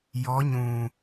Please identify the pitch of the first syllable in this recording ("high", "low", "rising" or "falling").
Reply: rising